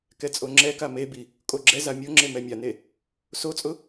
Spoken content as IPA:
k ɛ t͡sʼ o ŋ͡ǁ ɛ k a m e b i | kʼ o ɡ͡ǁ ɛ z a mʲ o ŋ͡ǁ e m ɛ mʲ a n e | s o t͡sʼ ʊ

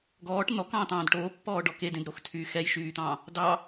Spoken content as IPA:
ɡ ɔː ʈ n̪ ɔ k ɑ̃ː t̪ ɑ̃ː d ʈ oː pː ɔː ɖ ɔ k e d ẽ d ɾ o x tʰ yː x ɛ j ʃ yː t̪ ɑ̃ː | d ɑ

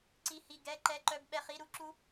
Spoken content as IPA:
ǀ i˦˥ h i˧˥˧ ɡ ɛ˧˥˧ ǃ ɛ˧˥˧ ǃ œ˧˥˧ b ɓ ɛ˧˥˧ χ i˧˥˧ ɾ u˦˥ ǁ u˦˥

